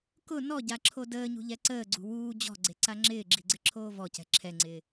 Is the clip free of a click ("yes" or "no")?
no